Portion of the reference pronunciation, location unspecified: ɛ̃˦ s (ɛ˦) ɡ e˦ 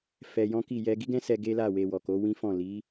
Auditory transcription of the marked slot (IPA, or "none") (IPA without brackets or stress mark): ɛ˧